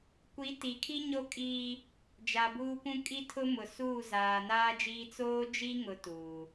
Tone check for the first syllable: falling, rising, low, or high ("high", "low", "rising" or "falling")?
rising